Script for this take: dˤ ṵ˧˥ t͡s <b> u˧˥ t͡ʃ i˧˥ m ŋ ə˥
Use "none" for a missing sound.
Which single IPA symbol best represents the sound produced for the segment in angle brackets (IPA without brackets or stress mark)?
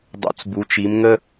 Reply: b